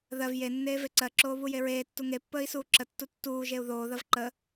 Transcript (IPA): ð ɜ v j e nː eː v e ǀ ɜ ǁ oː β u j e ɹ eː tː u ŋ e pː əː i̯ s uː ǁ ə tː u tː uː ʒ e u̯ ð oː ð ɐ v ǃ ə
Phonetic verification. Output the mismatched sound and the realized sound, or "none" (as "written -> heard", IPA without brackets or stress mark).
none